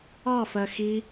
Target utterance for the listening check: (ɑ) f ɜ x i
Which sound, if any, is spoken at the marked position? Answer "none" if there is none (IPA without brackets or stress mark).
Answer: ɑ